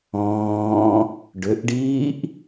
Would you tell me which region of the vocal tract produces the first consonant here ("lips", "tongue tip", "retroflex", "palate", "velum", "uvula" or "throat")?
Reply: retroflex